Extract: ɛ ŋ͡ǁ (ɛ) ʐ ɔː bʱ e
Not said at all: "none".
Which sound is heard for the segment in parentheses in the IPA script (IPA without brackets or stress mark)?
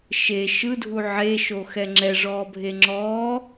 ɛ